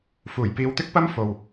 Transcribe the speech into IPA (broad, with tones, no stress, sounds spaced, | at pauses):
f uː˨˩ j p iː˨˧ w t̪ ɪ˥ k̚ p ɐ˥ m f o˨ w